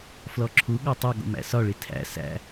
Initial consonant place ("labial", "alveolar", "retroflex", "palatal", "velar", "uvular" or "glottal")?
labial